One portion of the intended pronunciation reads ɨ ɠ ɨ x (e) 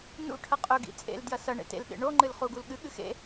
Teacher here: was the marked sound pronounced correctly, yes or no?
no